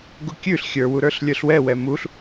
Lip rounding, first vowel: rounded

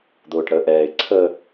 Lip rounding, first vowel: rounded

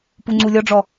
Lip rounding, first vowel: rounded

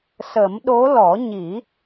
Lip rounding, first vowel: unrounded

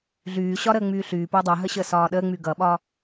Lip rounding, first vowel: rounded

